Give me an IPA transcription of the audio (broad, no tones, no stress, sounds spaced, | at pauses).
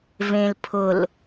v ẽ l pʰ ʊ l